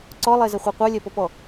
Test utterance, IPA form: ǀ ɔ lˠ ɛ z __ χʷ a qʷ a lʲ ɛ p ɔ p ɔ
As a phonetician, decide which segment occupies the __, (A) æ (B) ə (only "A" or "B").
B